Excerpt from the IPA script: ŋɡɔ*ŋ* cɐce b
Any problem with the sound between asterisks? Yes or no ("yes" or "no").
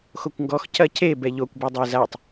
yes